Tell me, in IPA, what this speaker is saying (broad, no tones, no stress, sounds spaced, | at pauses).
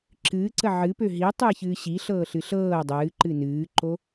ǁ ɨː ǀ ə ʕ ɨ p ø ɦ i tˤ ɨː ç ɨː ɕ i ɬ ɤː ɬ ɨ ɬ ɤː dˤ ɨː ǃ ɨ n ɨː ǃ o